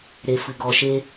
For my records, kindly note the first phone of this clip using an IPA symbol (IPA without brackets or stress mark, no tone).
ɾ